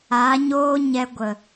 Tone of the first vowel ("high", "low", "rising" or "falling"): rising